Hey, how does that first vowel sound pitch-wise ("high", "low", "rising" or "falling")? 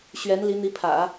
rising